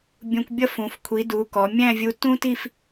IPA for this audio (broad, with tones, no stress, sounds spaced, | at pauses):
bʲ ũ˧ kʷ bʲ ʌ˥ f ũ˩˧ f kʷʰ i˩˧ d u˩˧ k ɔ˩˧ mʲ æ̃˥˧ vʲ u˧ t ũ˥ t i˥˧ f